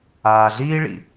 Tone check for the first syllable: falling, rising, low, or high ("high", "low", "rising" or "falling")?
low